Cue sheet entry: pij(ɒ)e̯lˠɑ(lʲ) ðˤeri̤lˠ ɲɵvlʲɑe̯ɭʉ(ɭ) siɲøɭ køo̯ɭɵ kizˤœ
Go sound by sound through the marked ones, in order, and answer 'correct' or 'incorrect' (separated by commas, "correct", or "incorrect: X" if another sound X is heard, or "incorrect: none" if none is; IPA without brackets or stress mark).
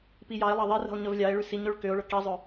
incorrect: ɑ, incorrect: none, incorrect: none